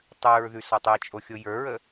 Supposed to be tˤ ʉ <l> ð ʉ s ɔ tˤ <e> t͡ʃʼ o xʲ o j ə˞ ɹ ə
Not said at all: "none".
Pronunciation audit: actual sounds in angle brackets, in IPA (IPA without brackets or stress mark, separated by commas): ɹ, e